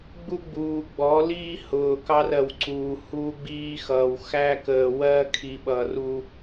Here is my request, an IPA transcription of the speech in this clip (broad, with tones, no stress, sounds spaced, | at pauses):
ɡ͡b u˦ ɡ͡b uː˨ ɡ͡b ɔ˨˦ l iː˦ h ʊː˨ k ɑ˦ r ɜ˨ w ǀ uː˨ h uː˦ ɡ͡b iː˦ x ʌː˨ w x æ˦ k əː˨ w ɜ˦ kʰ i˨ ɓ ʌː˨ r u˦